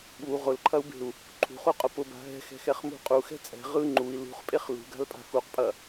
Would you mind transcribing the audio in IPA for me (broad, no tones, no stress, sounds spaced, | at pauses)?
ɓ u ʁ ʊ l ǃʰ ɐ u̯ b e̤ u̯ | ǃʰ ṳ χ u qʼ ʊ p ʊ b a̤ ɦ ɛ̤ x ɛ̤ x ɛ χ m ṳ qʼ u x ɛ̤ t͡sʼ ɛ̤ ʁ ɯ ŋ͡ǃ u i̯ l ṳ χ pʼ e χ l ṳ ɡ a̤ l pʼ a̤ x u q pʼ ɐ